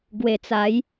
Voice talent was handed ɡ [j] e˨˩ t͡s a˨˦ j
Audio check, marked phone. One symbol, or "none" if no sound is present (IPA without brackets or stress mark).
w